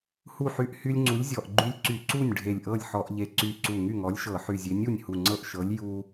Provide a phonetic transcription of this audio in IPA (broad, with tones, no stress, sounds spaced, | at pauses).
h u˥˩ ħ y˦ ʔ h y˦ lʲ ŋ͡ǀ u˨˥ lʲ zʲ ɔ˧˩ ʔ ɡ͡ǃ y˦ lʲ ǀ y˧˩˧ ǀ u˥˩ nʲ ɖʱ e˧˩ lʲ ʔ ɤ˥˩ lʲ ħ ɔ˧˩˧ ʔ ʎ e˧˩ ǀ y˧˩ ǀ u˧˩ ŋ y˥˩ ŋ ɔ˨˥ lʲ ʃ ɤ˧˩˧ ħ y˧˩ zʲ e˨˥ nʲ u˥˩ nʲ h u˧˩ ŋ͡ǀ ɤ˥˩ ʔ ʃ ɤ˨˥ lʲ j u˦